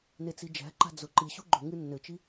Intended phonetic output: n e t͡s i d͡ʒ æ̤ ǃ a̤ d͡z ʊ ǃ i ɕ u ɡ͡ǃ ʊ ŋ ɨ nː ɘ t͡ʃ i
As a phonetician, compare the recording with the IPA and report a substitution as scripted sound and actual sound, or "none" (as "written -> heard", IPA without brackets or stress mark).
none